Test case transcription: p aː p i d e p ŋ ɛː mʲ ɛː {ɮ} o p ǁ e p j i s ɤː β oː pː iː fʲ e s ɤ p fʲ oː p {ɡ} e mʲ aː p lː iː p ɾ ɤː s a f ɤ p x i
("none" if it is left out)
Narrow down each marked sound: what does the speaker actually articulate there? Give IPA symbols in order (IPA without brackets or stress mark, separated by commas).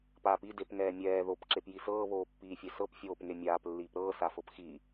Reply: ð, ŋ